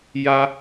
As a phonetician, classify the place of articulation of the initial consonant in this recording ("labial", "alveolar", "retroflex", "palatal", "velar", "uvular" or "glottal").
palatal